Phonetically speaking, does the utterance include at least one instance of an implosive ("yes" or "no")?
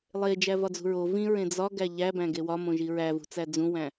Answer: no